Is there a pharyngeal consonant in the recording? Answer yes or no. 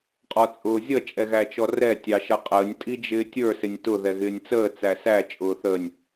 no